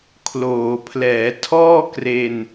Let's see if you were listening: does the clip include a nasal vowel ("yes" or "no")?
no